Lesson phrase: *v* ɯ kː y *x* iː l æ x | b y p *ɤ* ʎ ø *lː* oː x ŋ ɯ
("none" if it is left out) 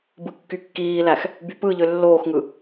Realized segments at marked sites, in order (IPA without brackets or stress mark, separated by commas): b, kː, ɯ, lː